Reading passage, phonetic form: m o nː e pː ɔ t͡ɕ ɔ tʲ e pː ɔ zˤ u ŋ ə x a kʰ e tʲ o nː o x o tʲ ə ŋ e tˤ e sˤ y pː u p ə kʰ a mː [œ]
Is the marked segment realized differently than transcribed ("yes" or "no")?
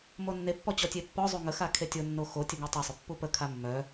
no